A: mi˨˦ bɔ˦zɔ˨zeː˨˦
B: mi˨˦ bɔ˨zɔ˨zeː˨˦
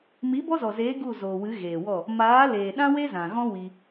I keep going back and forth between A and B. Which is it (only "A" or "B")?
A